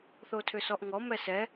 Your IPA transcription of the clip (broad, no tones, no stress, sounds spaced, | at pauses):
θ o tʰ ʏ s ɔ ʔ ŋ ɔ m ɛ s ɛ